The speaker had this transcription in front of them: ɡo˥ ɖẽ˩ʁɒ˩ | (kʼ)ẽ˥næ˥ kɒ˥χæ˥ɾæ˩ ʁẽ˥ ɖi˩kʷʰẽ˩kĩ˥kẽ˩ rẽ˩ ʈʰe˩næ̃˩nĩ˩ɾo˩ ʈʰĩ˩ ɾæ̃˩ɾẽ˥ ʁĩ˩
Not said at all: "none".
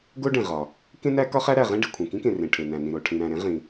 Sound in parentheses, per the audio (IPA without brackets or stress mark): k